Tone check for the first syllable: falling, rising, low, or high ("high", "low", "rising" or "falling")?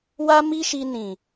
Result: high